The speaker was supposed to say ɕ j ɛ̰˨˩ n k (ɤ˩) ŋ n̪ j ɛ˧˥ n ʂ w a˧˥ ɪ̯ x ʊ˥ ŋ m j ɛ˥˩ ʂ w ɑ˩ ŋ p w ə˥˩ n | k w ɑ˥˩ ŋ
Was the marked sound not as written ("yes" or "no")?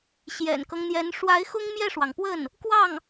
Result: yes